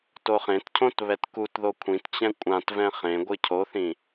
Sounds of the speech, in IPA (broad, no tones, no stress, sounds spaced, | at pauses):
t o χ ẽ t cʰ õ t β ɛ t k u t ð o kʷʰ ĩ t t͡ɕ ɛ̃ kʷʼ ã t v ɛ̃ χ ẽ ɡʷ ɨ cʰ o θ ĩ